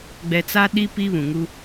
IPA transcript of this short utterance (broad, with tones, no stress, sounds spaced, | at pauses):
ɡ͡b ɛ˨ t͡s a˦ ɗ i˦ p i˦ β ũ˨ ŋ u˦